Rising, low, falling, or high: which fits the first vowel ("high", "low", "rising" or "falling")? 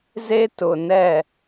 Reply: high